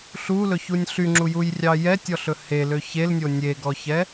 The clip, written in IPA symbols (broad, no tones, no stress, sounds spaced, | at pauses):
ɬ u l ɵ ç u nʲ ɬ y ŋ͡ǁ u j u j rʲ ɑ j ɛ tʲ ɔ ɬ ɵ h e l ø ç e l nʲ o nʲ e ɡ ɔ ç ɛ